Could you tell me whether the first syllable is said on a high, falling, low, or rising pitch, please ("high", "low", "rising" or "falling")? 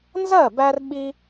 falling